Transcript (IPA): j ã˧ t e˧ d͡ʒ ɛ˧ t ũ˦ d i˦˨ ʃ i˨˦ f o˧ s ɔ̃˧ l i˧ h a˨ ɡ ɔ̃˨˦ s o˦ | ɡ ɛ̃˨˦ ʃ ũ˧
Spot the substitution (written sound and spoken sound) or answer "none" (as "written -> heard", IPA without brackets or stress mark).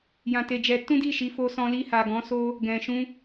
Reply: ɛ̃˨˦ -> ɛ̃˨